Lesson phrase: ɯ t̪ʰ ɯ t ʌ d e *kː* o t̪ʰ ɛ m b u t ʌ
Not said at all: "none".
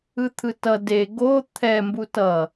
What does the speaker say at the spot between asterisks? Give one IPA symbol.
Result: ɡ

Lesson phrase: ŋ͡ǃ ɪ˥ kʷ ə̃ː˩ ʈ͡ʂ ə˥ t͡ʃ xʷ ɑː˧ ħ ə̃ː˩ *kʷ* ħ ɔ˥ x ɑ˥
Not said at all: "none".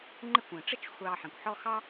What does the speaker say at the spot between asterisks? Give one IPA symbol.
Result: kʷ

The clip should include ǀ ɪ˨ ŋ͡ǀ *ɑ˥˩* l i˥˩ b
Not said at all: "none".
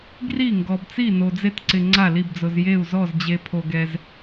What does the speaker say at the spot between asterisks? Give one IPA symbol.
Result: a˥˩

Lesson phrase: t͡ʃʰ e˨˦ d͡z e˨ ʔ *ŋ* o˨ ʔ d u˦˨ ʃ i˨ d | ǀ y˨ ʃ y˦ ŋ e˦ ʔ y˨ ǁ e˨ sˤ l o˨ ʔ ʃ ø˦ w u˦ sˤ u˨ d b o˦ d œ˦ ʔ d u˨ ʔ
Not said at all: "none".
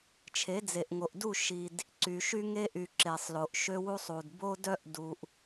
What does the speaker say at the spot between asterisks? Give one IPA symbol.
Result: ŋ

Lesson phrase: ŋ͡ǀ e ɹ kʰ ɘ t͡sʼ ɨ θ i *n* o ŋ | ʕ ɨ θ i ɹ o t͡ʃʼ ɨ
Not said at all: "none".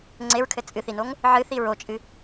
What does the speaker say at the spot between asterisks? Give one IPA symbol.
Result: n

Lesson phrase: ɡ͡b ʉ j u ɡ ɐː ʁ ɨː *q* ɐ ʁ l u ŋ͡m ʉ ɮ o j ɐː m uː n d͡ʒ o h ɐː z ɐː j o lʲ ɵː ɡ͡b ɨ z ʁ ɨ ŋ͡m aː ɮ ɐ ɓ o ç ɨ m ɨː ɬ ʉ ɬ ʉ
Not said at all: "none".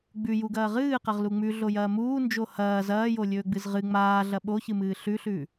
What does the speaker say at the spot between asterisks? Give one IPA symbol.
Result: q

